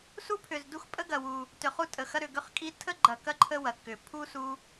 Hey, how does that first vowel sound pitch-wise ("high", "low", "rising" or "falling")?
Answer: high